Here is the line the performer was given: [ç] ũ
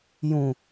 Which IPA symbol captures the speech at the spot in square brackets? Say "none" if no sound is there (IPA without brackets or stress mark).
j